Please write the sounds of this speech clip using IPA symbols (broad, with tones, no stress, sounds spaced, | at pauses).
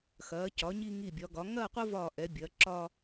x ɐː˩˧ c ɒ˩˧ ɲ i˧ ŋ i˧˩ bʲ ɒ˩˧ ɡ ɒ˩˧ ŋ ɐː˥˧ qʷ ɐ˥ v ɒː˧˩ ʔ ɛ˩˧ bʲ ɐː˩˧ ǁ ɒ˧